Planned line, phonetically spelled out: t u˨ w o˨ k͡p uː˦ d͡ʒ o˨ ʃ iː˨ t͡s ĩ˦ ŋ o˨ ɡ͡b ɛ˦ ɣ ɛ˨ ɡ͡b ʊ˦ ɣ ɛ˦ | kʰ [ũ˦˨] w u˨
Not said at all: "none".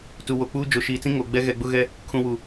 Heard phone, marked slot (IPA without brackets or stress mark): ũ˨